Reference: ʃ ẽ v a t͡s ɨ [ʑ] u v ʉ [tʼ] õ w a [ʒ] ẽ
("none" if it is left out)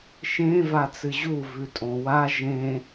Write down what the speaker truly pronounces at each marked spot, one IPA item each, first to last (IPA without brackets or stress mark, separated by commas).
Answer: ʑ, tʼ, ʒ